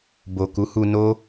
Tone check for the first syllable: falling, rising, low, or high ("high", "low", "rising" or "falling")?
low